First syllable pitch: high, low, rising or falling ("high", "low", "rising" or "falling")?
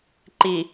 low